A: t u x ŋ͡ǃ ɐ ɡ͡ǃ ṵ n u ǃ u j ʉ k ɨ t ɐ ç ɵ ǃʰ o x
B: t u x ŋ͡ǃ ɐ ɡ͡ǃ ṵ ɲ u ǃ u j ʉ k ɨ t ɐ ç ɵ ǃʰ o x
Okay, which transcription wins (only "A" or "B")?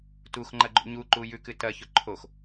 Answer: B